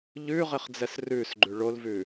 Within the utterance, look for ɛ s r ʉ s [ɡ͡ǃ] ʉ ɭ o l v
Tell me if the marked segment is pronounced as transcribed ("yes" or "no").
yes